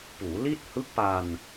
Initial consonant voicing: voiceless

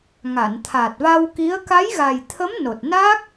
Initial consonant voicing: voiced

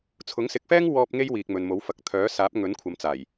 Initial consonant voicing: voiceless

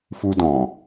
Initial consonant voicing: voiceless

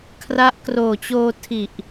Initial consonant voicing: voiceless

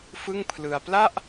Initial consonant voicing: voiceless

